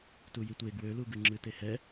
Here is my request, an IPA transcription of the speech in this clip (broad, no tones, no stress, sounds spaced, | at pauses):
t u j i tʷ e ɡ w ø l u ɡ ɨ ŋ͡ǁ ɨ t e h ɛ